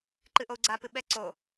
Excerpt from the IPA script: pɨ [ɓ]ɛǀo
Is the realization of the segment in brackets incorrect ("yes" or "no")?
no